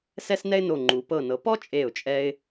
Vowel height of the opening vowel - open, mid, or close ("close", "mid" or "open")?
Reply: mid